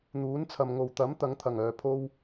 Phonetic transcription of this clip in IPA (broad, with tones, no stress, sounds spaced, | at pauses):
n̪ uː˨˥ n t͡sʰ ɐ˨ m ŋ o˨˩ w t̪ ɐ˨˥ m t̪ ɐ˨˧ ŋ t̪ʰ ɐ˨˩ ŋ œː˨˩ pʰ o˥ w